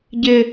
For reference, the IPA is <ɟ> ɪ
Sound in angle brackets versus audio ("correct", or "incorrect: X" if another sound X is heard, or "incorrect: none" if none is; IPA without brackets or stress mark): correct